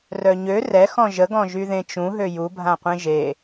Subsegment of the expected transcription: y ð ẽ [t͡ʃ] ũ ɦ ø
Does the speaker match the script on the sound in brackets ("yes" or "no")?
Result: yes